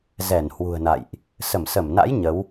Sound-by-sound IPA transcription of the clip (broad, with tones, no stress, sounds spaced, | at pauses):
z ɛ˧˩ n h w ṳ˨˩ ə̯ n a̰˧˨ j ʔ | s ə˧˩ m s ə˧˩ m n a̰˧˥ j ɲ ə˨˦ w